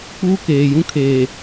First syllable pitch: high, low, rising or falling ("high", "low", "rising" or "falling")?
high